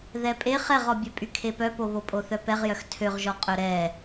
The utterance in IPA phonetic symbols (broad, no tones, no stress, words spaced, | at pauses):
ðɛpʼe χɛʁɔbʲɛ pʼykʰepœpo βopʼoθœpɛʁ jœxtʰøʁʒɔ qʼœɾɛ